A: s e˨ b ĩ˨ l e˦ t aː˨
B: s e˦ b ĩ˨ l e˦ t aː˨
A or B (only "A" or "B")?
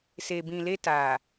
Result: A